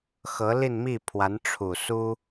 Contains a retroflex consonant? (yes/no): yes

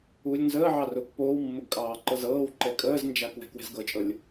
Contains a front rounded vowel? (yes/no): no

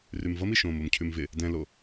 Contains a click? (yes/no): no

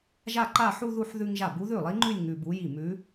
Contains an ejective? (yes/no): no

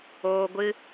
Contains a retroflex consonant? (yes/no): no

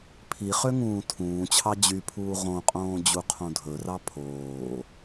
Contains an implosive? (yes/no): no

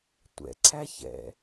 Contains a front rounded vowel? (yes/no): no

